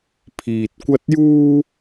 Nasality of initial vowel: oral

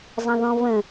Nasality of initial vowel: nasal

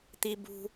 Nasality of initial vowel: oral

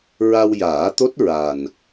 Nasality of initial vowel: oral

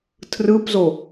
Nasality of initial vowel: oral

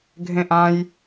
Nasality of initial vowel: nasal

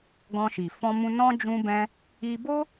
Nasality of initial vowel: nasal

